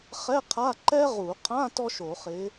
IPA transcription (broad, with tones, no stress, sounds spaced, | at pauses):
χ ɛ˧˥˧ qʰ a˧˥˧ ǃ ɛ˥ ʁ u˧˩˧ qʰ ã˧˥˧ t ɔ˥ ʃ o˧˩˧ χ ɪ˨˦